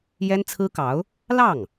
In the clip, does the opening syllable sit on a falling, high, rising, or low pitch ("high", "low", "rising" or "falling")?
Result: high